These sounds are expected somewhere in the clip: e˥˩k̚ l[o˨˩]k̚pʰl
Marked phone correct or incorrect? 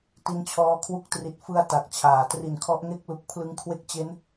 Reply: incorrect